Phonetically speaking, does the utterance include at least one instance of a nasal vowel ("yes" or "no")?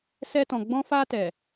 yes